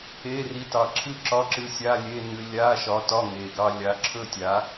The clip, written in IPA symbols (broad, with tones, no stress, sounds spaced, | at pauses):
e˧˥˧ r i˨˥ t ɑ˨˩ ǁʰ ɨ˥˨ ǁ ɒ˧˥˧ ǁ ɨ˧ sʲ a˧˥˧ lʲ e˧˥˧ n ɨ˧ lʲ a˧˥˧ ʃ ɒ˨˥ t ɒ˧˥˧ ŋ e˨˩ ɡ ɑ˧ lʲ a˨˥ ǁʰ ɵ˥˨ tʲ a˨˥